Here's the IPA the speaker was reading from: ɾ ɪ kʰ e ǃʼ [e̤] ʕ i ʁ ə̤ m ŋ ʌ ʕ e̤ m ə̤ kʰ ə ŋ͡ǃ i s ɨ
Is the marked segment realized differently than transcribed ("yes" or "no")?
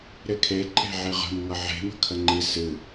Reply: no